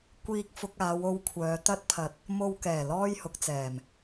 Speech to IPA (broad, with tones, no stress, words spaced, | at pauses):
kʷiː˧k̚fʊ˧k̚ aː˨˧wo˧wkʷʰœː˨˧ t̪ɐ˥t̚pʰɐ˧t̚ | mo˧wkɛː˨˩ lɔː˥jhʊ˨˥k̚t͡sɛː˨˩m